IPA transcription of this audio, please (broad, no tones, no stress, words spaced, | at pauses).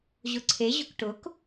ʑʊǀʰe ʑʊkʈʊk